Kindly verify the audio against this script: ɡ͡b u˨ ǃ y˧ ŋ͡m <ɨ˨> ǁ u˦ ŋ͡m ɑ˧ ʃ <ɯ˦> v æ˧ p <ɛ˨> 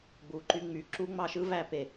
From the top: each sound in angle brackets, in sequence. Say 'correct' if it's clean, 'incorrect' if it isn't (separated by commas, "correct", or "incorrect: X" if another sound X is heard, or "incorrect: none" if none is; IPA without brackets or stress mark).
incorrect: y˨, correct, incorrect: e˨